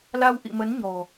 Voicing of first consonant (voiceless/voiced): voiced